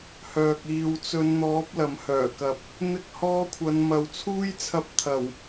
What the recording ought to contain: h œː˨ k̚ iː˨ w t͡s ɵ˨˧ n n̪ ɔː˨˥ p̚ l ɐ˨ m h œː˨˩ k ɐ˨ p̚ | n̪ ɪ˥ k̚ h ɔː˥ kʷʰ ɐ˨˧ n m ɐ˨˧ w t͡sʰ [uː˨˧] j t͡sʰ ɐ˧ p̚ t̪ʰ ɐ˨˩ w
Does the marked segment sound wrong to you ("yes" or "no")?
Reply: yes